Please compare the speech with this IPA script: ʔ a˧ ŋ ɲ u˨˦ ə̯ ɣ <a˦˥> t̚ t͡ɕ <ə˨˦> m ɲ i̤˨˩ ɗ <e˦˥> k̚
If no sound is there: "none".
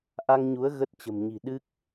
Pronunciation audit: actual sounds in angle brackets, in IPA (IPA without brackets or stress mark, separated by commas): ə˦˥, ə̤˨˩, ɨ˦˥